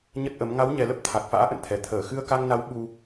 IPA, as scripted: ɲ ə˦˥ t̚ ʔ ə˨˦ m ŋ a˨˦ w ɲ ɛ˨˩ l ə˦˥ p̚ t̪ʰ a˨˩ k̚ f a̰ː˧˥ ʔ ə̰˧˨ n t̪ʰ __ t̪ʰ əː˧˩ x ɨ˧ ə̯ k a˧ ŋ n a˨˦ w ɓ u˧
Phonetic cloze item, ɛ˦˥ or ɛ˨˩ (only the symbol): ɛ˨˩